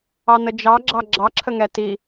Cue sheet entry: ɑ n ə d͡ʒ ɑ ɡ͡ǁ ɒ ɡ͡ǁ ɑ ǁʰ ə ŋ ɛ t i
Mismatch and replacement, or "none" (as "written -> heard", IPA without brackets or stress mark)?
ɒ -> ɑ